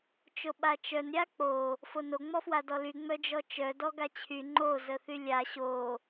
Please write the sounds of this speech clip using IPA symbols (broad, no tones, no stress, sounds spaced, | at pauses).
t͡ʃ o ɓ a t͡ʃ œ n ɾʲ a k͡p o | f o n o ŋ͡m ɔ f w a d ɔ l y ŋ͡m œ d͡ʒ ɔ t͡ʃ œ d ɔ ɡ a t͡ɕʰ y ŋ͡ǃ o z ə θ y lʲ a ɕ o